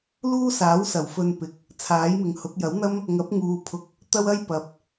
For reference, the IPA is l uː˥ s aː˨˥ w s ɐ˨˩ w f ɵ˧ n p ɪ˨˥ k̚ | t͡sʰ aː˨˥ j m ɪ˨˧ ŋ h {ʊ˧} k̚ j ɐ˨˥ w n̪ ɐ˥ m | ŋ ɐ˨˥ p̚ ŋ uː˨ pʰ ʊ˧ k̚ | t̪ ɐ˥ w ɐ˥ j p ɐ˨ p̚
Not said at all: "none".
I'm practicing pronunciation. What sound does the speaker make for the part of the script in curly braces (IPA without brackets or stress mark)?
ʊ˨˥